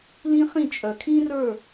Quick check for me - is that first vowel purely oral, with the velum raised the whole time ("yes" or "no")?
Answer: no